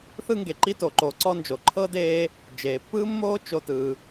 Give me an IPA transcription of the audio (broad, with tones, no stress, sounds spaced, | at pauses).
θ ɯ˦ ŋ ɡ e˩ ǃ i˦ t o˩ ǃ o˨ ǀ ɔ˥ n d͡ʒ o˩ ǃʰ ɤ˥ d eː˦ | d͡ʒ eː˩ pː ɯː˥ mː oː˥ t͡ʃ o˦ t ɯː˨